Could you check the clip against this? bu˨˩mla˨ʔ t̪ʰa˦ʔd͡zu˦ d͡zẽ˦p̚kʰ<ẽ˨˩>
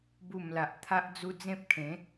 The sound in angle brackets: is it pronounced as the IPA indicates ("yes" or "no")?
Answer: no